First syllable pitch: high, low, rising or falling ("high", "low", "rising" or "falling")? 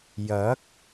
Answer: rising